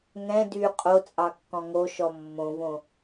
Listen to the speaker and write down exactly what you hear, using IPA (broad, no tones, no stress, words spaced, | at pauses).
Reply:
ŋɛ̃ dy qʼot͡sʼɑkːɔ̃ ŋoʃɔ mːõvõ